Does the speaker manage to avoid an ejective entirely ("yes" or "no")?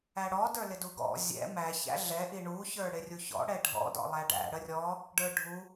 yes